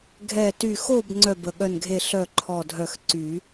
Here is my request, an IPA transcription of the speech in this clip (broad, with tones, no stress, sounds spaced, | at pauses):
ɡʱ ɛ˧˩ t y˧˩ x o˥˨ b ŋ͡ǀ œ˥˨ b ə˧˩ ɠ œ˥˨ n ɡʱ e˥˨ ɬ œ˥˨ ǃʰ ɔ˧˩ dʱ œ˧˩ x ǀ y˨˩˦